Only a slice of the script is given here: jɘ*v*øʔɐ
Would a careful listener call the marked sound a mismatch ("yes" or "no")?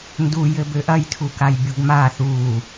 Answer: yes